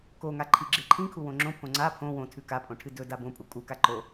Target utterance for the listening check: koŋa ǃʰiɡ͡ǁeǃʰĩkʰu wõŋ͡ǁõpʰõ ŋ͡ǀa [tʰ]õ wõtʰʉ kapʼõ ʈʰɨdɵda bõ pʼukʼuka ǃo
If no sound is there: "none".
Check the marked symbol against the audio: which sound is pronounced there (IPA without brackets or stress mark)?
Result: pʰ